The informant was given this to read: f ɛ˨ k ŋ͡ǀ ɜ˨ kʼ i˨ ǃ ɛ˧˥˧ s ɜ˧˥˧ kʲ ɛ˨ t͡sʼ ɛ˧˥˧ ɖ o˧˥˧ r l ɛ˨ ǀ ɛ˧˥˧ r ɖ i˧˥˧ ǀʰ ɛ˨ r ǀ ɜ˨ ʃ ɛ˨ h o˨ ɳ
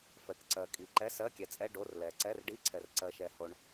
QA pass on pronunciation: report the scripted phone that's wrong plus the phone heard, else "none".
ŋ͡ǀ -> ǀ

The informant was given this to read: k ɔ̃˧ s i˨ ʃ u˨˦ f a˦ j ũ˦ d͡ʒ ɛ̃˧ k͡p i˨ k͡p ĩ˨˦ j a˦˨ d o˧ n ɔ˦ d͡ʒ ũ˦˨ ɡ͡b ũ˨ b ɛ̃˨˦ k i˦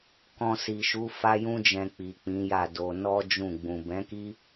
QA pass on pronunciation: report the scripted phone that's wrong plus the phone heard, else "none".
none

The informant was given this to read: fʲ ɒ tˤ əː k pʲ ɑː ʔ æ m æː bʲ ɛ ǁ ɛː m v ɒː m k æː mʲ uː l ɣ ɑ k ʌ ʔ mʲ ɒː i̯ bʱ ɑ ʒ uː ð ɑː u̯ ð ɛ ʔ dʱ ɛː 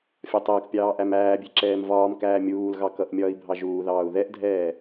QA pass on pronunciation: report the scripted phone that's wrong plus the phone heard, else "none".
none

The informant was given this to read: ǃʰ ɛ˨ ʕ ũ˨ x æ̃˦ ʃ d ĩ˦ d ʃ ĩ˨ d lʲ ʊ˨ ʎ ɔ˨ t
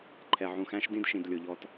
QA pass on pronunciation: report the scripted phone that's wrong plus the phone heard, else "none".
none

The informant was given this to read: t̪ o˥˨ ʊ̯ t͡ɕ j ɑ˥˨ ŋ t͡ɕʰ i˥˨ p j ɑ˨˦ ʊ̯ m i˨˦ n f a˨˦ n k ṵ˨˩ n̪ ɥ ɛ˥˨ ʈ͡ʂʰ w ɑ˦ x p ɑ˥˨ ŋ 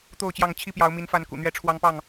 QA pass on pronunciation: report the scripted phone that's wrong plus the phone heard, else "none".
x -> ŋ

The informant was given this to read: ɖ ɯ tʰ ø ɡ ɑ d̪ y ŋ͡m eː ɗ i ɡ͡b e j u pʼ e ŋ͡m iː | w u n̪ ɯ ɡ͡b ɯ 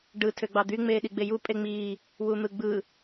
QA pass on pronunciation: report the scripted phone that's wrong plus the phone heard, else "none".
ɡ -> ɡ͡b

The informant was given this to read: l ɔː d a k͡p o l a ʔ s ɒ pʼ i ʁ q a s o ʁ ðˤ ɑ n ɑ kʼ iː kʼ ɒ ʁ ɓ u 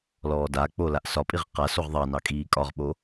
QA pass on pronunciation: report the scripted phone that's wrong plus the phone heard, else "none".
u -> o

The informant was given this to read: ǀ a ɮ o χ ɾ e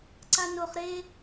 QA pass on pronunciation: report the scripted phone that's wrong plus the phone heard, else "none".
ɮ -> n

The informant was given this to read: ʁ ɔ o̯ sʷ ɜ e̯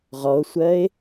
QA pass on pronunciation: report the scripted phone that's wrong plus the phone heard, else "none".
none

